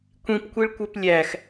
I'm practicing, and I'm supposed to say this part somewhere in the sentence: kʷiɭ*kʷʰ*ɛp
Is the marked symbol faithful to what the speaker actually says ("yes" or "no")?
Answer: no